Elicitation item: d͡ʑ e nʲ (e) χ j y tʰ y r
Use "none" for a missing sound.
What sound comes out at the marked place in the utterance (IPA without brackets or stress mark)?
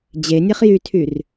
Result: e